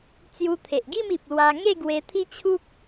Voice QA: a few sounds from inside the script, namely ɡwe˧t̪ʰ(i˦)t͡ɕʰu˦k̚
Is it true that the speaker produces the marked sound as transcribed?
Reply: yes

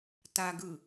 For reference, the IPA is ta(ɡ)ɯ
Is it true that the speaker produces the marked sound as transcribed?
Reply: yes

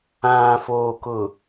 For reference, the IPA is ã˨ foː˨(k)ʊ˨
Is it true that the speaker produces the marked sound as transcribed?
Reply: yes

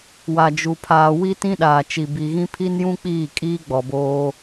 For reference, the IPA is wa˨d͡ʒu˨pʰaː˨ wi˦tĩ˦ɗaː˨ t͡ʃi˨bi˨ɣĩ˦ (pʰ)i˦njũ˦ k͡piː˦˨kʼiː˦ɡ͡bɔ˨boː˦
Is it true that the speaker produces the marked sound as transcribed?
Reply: yes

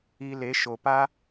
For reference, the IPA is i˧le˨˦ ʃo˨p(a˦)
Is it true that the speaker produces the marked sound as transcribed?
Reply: yes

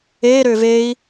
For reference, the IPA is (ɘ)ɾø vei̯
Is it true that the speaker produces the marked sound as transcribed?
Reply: no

